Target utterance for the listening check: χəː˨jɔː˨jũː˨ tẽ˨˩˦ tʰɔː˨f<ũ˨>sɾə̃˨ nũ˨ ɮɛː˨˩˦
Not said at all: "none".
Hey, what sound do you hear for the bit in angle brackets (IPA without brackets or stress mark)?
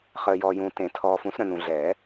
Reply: ũ˨˩˦